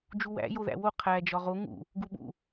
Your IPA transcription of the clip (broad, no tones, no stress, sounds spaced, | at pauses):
d͡ʒ u w æ̰ j o ð æ̰ w o qʰ æ d͡ʒ ɒ ʁ o ŋ ṵ | ɡ u ɓ ṵ